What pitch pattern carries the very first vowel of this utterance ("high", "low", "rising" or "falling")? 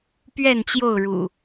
falling